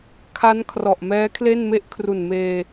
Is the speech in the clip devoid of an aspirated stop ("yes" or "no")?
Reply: no